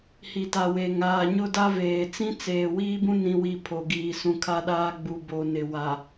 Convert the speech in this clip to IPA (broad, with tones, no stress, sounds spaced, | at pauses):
h i˨ t a˨ w e˨ ŋ aː˨ ɲ ʊ˦ d a˦ v eː˨ t͡s ĩ˦ t͡s eː˨ w iː˦ b ũ˦ n ĩ˦ w i˦ pʰ o˨ ɡ iː˨ s ũ˨ kʰ a˦ ɗ aː˦ ɡ͡b u˨ b o˨ n ɪ˨ w a˨